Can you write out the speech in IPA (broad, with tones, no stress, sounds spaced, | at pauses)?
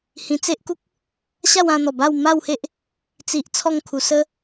h ĩ˧ t͡s e˦ ʔ k u˦ k̚ | ɕ a˥˧ w ã˧ n̪ ɔ˨˩ b a˥˧ w m a˥˧ w h e˦ ʔ | t͡s i˨ ʔ t͡sʰ ɔ˥˧ ŋ kʰ u˧ s ə˦